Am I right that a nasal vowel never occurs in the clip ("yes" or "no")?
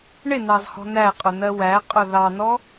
yes